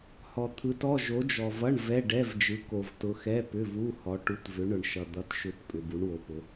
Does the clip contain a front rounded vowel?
yes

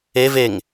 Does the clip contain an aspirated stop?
no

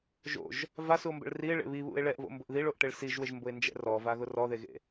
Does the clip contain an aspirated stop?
no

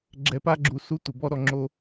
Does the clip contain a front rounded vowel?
no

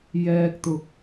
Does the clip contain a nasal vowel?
no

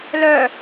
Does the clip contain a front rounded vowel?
yes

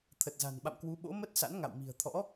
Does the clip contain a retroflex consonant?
no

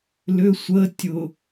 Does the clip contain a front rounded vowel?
yes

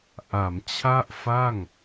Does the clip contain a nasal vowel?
no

